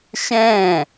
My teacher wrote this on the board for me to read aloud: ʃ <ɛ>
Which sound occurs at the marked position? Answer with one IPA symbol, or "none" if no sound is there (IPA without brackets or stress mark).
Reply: ɛ̃